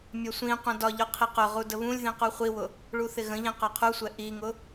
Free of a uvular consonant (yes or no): no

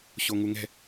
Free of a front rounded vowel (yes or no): yes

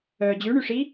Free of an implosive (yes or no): yes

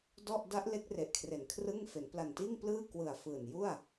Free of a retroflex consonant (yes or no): yes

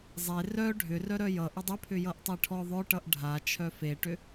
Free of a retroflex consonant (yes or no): no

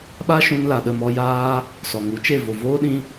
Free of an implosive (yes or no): no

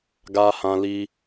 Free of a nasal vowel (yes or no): no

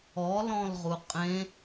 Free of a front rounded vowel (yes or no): yes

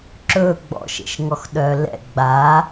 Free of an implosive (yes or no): no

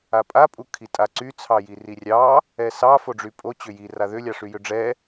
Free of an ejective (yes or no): no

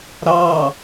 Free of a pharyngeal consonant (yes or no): yes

